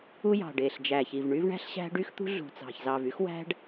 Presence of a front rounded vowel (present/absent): present